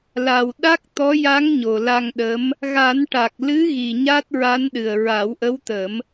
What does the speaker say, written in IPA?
l a˨˩ w ɗ a˦˥ k̚ t̪ ɔ˧˥ j a˧˥ ŋ ɲ o˨˩ l a˧ ŋ ɗ ə˧˥ m | ɣ a˨˩˦ n ʈ a˨˩ k̚ l ɨ˧˥ ɣ i˨˩ ɲ aː˦˥ t̚ ɹ a˧˥ n ɗ ɨ˨˩ ə̯ ɹ a˨˩˦ w ʔ ə˧˥ w t̪ ə˨˩˦ m

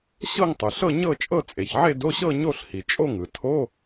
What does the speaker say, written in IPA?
ɕ ɤ˥˧ ŋ tˤ ɯ˩ ɬ ɤ˥˧ ɲ ɤ˥˧ t͡ʃʼ ɤ˥˧ t͡sʼ e˩ ç ʕ e˥˧ d o˧˥˧ ɕ ɤ˥˧ ɲ o˥˧ ɬ h i˩ t͡ʃʼ o˥˧ ŋ ɯ˩ tʰ o˧˥˧

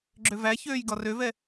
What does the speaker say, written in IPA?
ɡ͡ǁ ø v æ ç øː j ɡ ɒ r ø v ɛ

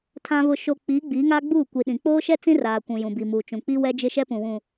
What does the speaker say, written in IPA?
tʰ ã˨ β ʊ˨ ʃ o˨ k͡p iː˨˦ ɡ͡b iː˨˦ ŋ aː˦ ɡ͡b uː˦˨ kʷ iː˨ ɗ ĩ˨ k͡p oː˦ ʃ ɛ˦ t͡s ĩ˦ r aː˨ kʷ ũ˨ j ũ˨ b i˨ m uː˨ t͡ʃ ũ˨ k͡p i˦ w ɛ˦ d͡ʒ ɪ˦ ʃ ɛ˦ p ũ˨ w ũ˨

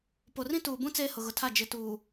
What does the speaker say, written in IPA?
p o˨ r ĩ˦ t uː˨ b ũ˦ t͡s eː˦ h ʊ˨ ɣ ʊ˨ tʰ a˦˨ d͡ʒ ɪ˨ t uː˨

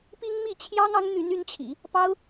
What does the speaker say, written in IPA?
p i˥ ŋ m i˥˩ t͡ɕʰ j ɑ˥ ŋ ɑ˧˥ ŋ n̪ y˧˥ n y˧˥ n t͡ɕʰ ḭ˨˩˦ | p ɑ˥ ʊ̯

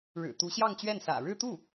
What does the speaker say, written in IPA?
ɻ ɻ̩˨˩ t̪ u˧˥ ɕ j ɑ˥˧ ŋ t͡ɕ ɥ ɛ˥˩ n s ä̰˨˩ ɻ ɻ̩˥˧ t̪ u˥˩

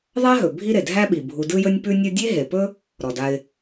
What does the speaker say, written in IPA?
ðˤ a˥ ɦ ɵ˩ bʱ i˦ ɾ e˩ dʱ æ˦ ɓ i˩ bʱ u˨ d ɯ˦ j ɵ˦ nʲ p ʉ˦ nʲ ɯ˦ dʲ e˥ ɦ e˩ p ɵ˥ | ɾ ɔ˩ d a˨ ɪ̯

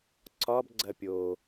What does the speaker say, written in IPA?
ǀ ɒ b ɡ͡ǀ ɐ pʲ o

